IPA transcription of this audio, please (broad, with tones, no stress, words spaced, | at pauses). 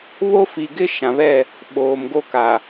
βo˦fi˨ɡɪ˦ ʃã˨βɛ˦˨ | ɓoː˨mɡo˦ka˨